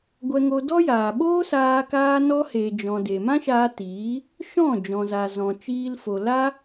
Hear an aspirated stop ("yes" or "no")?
no